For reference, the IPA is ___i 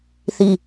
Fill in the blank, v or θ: θ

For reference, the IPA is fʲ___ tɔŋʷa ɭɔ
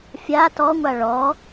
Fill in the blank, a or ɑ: a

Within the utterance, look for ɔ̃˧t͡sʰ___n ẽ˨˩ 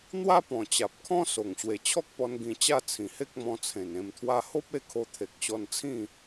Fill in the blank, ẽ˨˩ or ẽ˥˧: ẽ˨˩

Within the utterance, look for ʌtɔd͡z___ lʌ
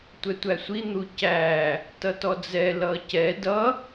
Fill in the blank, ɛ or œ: ɛ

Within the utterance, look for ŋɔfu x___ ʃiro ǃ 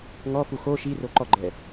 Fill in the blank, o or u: o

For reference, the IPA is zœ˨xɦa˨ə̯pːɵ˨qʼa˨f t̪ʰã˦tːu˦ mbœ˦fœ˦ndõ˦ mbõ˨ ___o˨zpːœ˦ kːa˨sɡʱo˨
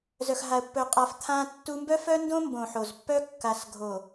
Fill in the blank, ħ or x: ħ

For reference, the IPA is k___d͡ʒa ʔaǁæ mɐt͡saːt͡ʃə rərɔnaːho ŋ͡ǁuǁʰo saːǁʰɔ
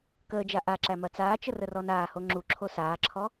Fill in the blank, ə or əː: əː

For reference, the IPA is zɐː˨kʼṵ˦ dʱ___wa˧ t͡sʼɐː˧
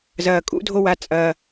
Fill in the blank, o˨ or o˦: o˦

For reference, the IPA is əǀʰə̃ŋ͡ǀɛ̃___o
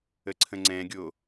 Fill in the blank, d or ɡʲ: ɡʲ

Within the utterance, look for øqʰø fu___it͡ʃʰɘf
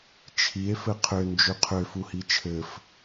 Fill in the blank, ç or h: h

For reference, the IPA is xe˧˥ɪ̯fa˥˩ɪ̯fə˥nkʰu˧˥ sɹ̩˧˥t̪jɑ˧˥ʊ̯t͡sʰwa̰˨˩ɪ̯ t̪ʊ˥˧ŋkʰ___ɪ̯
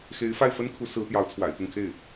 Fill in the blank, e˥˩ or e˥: e˥˩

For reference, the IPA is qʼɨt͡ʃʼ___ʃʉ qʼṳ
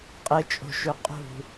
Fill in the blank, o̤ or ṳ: o̤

